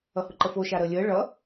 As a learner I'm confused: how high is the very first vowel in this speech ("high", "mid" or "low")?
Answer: mid